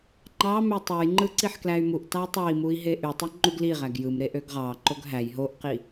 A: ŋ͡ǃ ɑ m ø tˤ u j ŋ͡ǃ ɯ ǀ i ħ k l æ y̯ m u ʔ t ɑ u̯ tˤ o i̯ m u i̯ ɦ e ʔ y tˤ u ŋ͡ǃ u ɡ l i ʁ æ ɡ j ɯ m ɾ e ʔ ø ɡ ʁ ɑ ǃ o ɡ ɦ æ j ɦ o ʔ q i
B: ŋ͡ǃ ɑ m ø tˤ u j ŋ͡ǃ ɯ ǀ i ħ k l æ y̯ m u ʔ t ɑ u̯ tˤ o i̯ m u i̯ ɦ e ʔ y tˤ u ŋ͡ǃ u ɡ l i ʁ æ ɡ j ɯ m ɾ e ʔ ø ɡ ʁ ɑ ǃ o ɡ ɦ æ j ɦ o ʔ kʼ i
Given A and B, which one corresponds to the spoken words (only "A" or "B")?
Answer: A